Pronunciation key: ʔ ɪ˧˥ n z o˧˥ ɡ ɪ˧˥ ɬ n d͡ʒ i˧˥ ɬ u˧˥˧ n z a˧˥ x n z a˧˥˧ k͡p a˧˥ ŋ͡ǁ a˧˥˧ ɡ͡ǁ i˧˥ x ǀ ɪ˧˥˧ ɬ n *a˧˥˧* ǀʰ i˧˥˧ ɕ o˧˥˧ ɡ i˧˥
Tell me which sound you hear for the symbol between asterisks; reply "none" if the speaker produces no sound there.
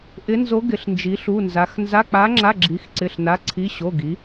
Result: a˧˥˧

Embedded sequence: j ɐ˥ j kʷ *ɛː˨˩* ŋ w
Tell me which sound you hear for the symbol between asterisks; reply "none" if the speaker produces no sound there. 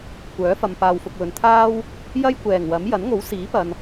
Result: ɛː˨˩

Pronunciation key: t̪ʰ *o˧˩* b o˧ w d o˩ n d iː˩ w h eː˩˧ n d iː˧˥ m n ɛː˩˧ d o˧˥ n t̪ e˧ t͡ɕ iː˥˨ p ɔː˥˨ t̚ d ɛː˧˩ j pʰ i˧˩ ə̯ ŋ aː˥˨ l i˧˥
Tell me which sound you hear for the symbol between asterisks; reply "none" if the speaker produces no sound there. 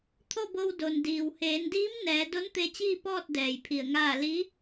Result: o˥˨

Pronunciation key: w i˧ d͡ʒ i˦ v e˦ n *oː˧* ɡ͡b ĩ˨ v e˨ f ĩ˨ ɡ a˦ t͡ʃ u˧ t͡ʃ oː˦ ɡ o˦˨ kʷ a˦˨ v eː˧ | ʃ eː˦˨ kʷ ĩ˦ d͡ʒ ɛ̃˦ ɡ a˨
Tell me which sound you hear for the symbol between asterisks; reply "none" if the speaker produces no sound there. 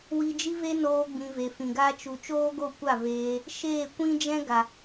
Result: oː˧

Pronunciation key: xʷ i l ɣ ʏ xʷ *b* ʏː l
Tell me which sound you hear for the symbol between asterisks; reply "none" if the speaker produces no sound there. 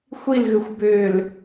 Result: b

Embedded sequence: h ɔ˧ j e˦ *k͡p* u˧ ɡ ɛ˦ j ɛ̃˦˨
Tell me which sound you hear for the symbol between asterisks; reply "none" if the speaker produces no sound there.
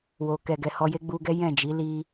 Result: ɡ͡b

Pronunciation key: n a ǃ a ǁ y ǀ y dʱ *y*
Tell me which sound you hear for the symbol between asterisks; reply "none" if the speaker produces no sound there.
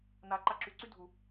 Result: u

